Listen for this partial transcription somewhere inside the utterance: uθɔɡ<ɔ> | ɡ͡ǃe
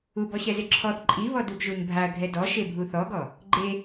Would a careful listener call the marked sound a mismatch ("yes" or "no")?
no